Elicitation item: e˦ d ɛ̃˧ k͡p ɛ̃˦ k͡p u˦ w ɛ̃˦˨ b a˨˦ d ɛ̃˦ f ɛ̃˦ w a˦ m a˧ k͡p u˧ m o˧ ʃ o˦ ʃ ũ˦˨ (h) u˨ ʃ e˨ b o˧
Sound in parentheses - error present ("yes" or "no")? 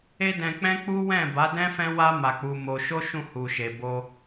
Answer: no